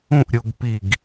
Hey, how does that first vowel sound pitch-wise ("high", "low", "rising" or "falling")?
falling